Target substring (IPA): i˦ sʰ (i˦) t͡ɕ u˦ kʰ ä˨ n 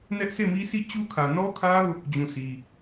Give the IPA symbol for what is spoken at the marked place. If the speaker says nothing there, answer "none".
i˦˨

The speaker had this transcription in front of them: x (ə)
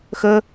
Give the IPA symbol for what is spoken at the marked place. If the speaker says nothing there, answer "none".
ə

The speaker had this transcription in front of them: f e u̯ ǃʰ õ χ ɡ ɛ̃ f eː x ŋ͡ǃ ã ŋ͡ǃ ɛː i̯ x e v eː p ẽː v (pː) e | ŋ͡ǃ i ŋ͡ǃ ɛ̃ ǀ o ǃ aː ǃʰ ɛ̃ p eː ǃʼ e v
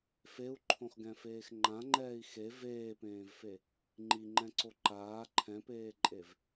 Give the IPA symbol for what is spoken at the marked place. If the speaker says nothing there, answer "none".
f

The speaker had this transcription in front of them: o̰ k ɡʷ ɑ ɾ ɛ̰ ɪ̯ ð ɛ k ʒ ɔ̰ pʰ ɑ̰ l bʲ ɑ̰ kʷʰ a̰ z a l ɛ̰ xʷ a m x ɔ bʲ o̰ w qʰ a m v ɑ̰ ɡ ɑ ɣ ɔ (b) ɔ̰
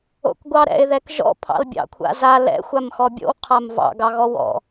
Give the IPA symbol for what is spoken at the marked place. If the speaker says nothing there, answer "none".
w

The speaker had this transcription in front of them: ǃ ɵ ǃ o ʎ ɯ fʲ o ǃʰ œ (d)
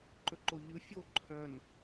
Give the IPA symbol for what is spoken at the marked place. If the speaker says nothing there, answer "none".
n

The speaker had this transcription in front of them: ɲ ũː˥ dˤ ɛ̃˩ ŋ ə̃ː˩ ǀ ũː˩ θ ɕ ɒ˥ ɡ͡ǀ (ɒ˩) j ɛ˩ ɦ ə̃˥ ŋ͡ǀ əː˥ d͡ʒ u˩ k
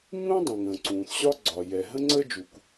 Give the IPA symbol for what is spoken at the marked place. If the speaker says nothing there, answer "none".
ɒ˩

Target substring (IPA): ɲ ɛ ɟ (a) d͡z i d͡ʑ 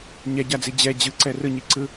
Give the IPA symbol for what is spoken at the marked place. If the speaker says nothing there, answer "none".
a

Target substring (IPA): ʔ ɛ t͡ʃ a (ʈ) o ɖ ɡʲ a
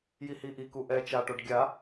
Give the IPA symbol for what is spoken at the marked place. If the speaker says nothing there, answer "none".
ʈ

